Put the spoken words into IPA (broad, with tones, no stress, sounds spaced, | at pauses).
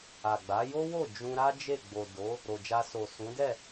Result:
a˨ ɡ͡b a˨˦ j o˦ w o˦˨ d͡ʒ ũ˧ ɾ a˦ d͡ʒ e˦˨ ɡ͡b o˨ d o˨˦ | ɾ o˨ d͡ʒ a˧ s o˨ s ũ˨˦ d ɛ˦˨